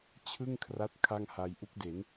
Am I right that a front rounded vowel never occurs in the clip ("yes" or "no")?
yes